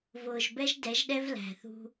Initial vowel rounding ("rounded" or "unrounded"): rounded